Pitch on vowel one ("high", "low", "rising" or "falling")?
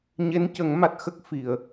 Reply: rising